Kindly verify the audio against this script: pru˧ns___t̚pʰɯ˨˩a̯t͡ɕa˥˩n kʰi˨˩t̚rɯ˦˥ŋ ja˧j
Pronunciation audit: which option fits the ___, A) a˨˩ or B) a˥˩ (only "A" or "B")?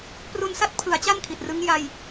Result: B